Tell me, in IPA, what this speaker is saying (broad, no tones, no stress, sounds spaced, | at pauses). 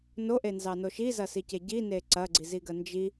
n o ʔ e n z ɑ n o ʃ i z ɐ s i c e ɟ i n e ǀ ɐ ɡ͡ǀ i z i ɡ ɜ n d͡ʒ i